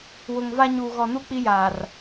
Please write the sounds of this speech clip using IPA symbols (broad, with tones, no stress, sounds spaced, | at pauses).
w ʊ˨ ŋ v a˦ ɲ uː˨ ɣ ɔ˨ n u˦ k͡p i˦ j aː˨ r